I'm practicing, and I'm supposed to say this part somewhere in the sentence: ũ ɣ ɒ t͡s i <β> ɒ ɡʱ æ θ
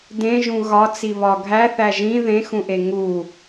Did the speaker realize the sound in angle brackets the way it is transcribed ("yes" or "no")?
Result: yes